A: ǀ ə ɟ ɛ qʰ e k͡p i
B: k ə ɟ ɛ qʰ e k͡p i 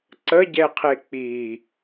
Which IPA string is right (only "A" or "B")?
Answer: A